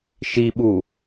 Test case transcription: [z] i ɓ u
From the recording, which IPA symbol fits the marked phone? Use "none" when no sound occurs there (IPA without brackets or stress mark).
ʃ